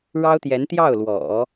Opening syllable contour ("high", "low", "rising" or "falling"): high